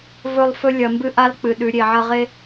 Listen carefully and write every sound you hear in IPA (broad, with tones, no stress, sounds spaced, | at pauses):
v ɵ˦˨ lˠ f ɵ˦ lʲ ɐ˨ m b ɨ˦ ʔ a˦ l k͡p ɨ˨ ɗ ʉ˨˦ ɾʲ e˨ ʕ ɐ˦ ʁ e˦